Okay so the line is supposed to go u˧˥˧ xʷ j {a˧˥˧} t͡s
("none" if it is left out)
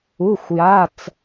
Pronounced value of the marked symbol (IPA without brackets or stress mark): a˧˥˧